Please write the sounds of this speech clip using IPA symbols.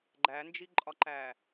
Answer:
ɡ͡ǃ æ n d͡ʒ i ǃʼ ɒ ǃ æ

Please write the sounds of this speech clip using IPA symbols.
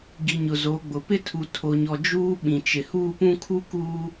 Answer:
ɡ i˨ ɲ ʊ˨ z o˨˦ ɡ͡b ʊ˨ p ɪ˦ tʰ u˨ tʰ o˨ ɲ ɔ˨ d͡ʒ uː˦ ɓ ĩ˨ t͡ʃ ɪ˨ h uː˦˨ p ũ˦ kʰ u˦ k uː˦

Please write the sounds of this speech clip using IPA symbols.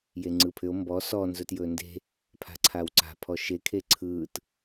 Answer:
j e ŋ͡ǀ ɯ pʰ ʏ o̯ m b ɔ s ɔ n z ɵ t j ɵː n d e̤ | pʰ a̤ ǀʰ a w ǀ a̤ pʰ ɔ ʃ e kʰ e ǀʰ ɯː t

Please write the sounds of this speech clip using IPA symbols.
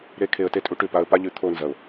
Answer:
ɾ e˧ kʰ e˨ ə̯ t e˦ tʼ u˧ ʈ ʉ˨ p a˧ ə̯ p a˦ ʎ ʉ˨ t̪ʰ o˦˨ n z ɐ˨ ʊ̯

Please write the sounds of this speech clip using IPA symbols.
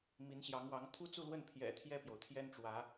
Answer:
m i˧˥ n ɕ j ɑ˧˥ ŋ w ɑ˧˥ ŋ t̪ʰ u˥ t͡s u˥˧ l w ə˥˩ n pʰ j ɛ̰˨˩ t̪ʰ j ɛ˥˩ p j o˩ ʊ̯ t̪ʰ j ɛ˥ n ʈ͡ʂ w ä˧˥

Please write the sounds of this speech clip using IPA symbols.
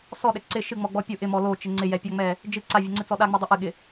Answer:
s ɔ ɗ ɛ ǀ ɪ ʃ ɨ ŋ͡m ɔ ɡ͡b ɔ pʲ ʊ ʔ ɪ m ɔ l o t͡ʃ ɪ ŋ͡ǀ ɪ j ɛ pʲ a ŋ͡m ɛ | d͡ʒ ɨ ǀ a vʲ ʊ ŋ͡ǀ ɨ t͡s ɔ ɗ a ŋ͡m ɛ dˤ o ʔ ɨ ɠ ɪ

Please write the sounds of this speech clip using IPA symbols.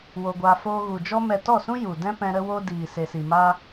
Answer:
w o˧ ɡʷ a˧ f oː˧ ɣ u˨ d͡ʒ ɔ˦ m ɛ˧ t ɔ˦˨ s ũ˦ j u˨ d ɛ̃˦ p ɛ̃˧ ɾ ə˧ w o˧ d iː˨ s e˨ s i˨ m a˦

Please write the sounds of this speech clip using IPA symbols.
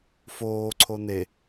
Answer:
f oː ǀʰ o n e

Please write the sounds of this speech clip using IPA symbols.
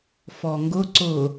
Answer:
f ɔ ŋ ɡ ʊ ǀ ʊ

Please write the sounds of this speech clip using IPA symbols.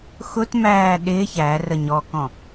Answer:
x ʊ t m æː ɗ ɪː ç æ r ə ɲ ɔ k ɔ̃

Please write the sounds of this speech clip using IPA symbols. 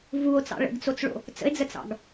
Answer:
v u o̯ t͡s ɑ̰ ɭ ə̰ ɡ t͡s o t͡s ɭ o̰ | t͡s ə̰ e̯ d͡z ə t͡s ɑ̰ ɡ

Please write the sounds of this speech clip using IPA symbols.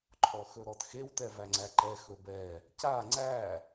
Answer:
ǃʰ ɔ x ɵ ɾ ɔ t x e w t ɛ v æ ŋ͡ǀ æ ǃ ɛ x ɵ b ɛ | c a ŋ͡ǀ æ

